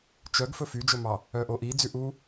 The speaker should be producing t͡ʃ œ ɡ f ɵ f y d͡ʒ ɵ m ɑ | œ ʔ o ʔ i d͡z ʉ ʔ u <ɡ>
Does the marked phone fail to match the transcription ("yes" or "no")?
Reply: yes